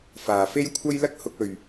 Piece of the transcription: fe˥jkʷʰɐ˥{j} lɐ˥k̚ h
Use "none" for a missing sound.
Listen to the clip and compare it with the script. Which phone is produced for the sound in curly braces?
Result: j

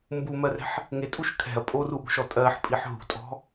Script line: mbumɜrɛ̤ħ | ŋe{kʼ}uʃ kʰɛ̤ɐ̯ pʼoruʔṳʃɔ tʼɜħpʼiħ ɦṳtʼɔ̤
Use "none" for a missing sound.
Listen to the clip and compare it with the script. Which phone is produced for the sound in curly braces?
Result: tʼ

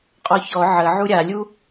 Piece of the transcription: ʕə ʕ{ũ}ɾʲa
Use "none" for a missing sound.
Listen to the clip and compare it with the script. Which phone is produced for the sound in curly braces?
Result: u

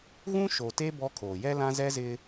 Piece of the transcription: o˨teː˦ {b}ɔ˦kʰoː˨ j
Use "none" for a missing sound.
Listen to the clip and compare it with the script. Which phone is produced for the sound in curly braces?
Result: b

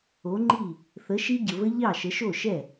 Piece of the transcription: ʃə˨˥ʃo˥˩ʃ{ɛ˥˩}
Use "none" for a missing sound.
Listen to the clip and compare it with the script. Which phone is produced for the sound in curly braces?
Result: ɛ˥˩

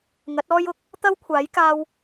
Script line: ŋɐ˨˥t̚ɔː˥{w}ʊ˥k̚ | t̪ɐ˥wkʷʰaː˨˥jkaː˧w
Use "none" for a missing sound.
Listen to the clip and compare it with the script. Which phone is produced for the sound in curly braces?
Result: j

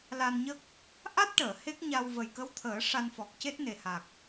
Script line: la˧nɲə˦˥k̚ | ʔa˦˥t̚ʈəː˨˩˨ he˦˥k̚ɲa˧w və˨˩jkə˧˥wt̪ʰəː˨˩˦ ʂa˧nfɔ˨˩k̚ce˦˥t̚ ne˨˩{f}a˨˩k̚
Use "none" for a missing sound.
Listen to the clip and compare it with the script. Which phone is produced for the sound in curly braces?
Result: h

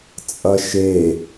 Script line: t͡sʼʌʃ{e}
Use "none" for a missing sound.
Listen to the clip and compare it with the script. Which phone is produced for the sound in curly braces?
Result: e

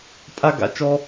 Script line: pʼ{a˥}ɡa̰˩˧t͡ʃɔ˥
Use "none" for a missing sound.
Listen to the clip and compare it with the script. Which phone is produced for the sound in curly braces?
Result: a˥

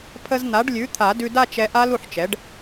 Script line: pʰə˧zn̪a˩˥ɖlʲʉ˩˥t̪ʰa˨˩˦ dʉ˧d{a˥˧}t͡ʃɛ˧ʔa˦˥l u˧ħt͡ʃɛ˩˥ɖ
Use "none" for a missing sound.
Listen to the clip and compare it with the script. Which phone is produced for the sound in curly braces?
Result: a˥˧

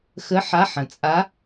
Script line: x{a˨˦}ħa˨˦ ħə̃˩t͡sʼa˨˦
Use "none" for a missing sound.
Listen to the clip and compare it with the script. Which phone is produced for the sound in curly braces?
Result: ə˨˦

